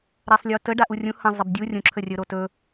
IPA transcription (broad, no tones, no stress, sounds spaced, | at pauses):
ɾ a sˤ lʲ o t ə ɖ a ʔ u rʲ ũ h ə̃ zˤ ə b dʲ u rʲ ũ ǁʰ ə rʲ ɵ ɾ o t ɵ